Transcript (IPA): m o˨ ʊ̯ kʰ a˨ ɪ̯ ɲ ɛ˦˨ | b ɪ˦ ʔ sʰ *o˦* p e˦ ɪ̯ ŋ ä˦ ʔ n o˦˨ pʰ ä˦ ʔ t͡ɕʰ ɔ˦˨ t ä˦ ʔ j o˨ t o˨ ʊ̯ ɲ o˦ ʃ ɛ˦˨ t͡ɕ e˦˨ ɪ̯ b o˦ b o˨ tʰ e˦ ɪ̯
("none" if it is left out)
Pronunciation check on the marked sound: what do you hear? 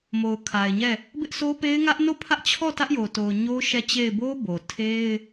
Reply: o˦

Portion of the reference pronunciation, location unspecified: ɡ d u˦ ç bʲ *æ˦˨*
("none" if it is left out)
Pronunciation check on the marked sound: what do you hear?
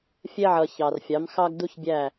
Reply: æ˦˨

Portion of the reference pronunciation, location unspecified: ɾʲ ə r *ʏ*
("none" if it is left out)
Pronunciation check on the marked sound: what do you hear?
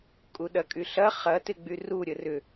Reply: ʏ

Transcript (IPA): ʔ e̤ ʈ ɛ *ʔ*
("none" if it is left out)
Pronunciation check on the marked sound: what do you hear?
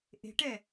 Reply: none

